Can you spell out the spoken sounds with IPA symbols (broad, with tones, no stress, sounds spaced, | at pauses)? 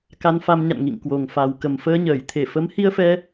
k a˧ n f a˧ m ɲ a̰˧˨ n ŋ ḭ˧˨ ŋ k w o˨˩ ŋ f a˨˩ w k ə˨˩ m f əː˧ ɲ əː˧˩ j t̪ʰ e˧˩ f ə˨˦ m h i˧ ə̯ f ɛ˧